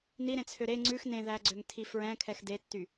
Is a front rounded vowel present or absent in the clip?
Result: present